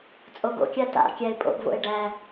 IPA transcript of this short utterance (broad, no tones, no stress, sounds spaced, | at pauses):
t͡sʼ o ɡ o̰ kʲ a t a̰ kʲ æ ɪ̯ pʼ o̰ ɡ v o̰ ɪ̯ ɖ æ